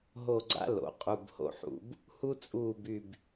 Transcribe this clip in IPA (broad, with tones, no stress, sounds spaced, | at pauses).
ɦ o˦˨ ɡ͡ǀ a̰˥ l o̰˩˧ qʼ u˩˧˩ b h o̰˦˨ ħ ṵ˧˩˧ b | h u˥ t͡sʼ uː˦˨ b y˦˨ b